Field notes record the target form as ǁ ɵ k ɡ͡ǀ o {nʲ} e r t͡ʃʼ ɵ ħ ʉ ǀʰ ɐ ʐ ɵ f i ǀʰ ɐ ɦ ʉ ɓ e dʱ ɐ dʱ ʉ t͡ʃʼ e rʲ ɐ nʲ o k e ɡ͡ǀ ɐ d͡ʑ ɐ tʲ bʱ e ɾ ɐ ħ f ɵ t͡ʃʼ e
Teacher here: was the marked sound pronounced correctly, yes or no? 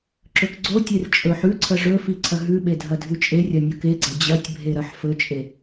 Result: no